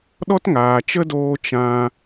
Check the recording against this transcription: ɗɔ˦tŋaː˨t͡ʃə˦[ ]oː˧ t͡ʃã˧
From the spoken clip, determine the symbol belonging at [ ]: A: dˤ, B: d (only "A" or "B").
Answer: B